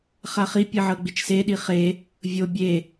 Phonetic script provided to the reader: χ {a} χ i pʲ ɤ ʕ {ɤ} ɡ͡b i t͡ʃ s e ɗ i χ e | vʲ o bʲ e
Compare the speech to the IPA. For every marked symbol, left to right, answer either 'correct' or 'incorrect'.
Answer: correct, correct

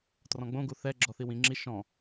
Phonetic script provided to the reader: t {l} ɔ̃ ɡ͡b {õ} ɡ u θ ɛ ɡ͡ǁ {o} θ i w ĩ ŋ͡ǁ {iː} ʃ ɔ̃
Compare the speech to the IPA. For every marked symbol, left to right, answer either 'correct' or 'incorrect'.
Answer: incorrect: r, correct, incorrect: ɔ, incorrect: i

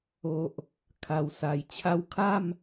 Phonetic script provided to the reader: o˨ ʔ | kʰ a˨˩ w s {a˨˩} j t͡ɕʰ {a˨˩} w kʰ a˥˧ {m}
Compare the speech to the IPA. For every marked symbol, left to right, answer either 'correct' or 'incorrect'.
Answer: correct, incorrect: a˥˧, correct

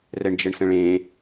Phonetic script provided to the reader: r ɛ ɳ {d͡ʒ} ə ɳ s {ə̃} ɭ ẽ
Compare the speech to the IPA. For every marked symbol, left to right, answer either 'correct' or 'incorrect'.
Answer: correct, correct

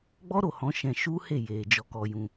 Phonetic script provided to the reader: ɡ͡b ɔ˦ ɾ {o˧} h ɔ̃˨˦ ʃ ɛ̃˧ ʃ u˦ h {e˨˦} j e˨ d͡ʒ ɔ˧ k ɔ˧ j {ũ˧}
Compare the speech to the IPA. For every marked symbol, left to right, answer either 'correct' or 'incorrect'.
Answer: incorrect: o˦˨, incorrect: e˦˨, correct

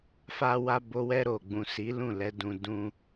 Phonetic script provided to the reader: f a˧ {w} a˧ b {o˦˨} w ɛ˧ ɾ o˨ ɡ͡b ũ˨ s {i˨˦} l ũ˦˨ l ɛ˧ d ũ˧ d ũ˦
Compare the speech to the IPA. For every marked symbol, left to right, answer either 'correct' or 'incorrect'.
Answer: correct, incorrect: o˧, correct

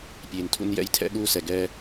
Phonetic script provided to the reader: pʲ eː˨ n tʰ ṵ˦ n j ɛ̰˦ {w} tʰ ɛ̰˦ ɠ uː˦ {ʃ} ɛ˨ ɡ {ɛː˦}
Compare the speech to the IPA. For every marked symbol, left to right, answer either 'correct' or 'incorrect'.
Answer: incorrect: j, incorrect: s, correct

